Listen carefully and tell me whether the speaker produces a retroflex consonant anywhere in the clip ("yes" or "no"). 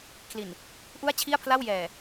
no